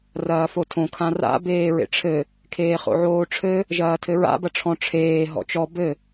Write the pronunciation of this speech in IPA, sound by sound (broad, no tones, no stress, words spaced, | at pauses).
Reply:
rɐːfotʰõ kʰãra̰ beːɹḛʈ͡ʂʰɘ | kʰeːχo̰ʕoːʈ͡ʂʰɘ | ʒɐːtʰɘɹa̰ bɐʈ͡ʂʰɔ̃ ʈ͡ʂʰeː ɦɔ̰t͡ʃɔ bɘ